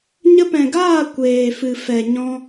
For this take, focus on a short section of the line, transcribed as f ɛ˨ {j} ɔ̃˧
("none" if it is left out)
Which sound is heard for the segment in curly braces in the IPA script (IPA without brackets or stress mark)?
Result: ɲ